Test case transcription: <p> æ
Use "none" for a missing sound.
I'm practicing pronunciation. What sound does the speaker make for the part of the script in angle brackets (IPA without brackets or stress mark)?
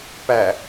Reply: p